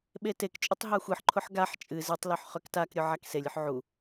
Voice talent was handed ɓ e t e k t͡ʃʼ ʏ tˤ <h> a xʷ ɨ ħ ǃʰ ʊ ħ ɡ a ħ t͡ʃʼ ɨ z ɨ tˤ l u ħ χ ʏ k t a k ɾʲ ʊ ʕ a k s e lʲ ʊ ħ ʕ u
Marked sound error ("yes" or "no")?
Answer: yes